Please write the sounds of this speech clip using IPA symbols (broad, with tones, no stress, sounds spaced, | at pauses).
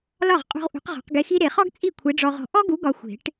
l ɒ˥˩ ʁ qʼ ṳ˧ ʁ ʔ ṳ˨˥ q ʁ ɔ̤˨˩˦ q ɡ e˧ x i˥ ɾ e˨˩˦ χ ɔ˥ ɡ t͡sʼ i˥˩ kʷʰ e˨˥ ɖ͡ʐ ɔ˧ ʁ ɔ̤˧ ʔ ɔ˥ ɡ u˨˥ ɡ ɒ˧ xʷ e̤˨˩˦ ʈ